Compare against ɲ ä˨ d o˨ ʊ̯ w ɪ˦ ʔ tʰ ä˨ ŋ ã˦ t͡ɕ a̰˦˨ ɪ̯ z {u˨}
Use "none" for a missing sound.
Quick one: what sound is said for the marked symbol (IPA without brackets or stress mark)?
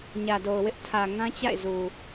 u˨